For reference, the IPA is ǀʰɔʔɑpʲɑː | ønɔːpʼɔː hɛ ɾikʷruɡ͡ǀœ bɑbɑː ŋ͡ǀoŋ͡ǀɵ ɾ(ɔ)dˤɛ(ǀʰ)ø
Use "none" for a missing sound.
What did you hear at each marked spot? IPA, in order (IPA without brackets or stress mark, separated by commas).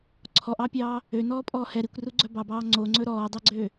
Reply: ɔː, ɡ͡ǀ